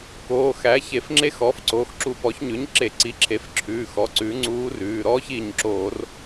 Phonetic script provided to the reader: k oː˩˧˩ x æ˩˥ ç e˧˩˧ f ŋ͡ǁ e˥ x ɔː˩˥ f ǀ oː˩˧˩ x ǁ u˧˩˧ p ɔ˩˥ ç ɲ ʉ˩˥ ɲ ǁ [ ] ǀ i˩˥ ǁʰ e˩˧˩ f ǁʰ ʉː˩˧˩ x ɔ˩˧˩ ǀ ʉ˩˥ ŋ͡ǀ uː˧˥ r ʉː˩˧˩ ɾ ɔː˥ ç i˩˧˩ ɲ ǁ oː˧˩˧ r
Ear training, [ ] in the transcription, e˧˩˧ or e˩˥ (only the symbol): e˧˩˧